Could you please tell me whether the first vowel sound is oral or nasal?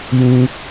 nasal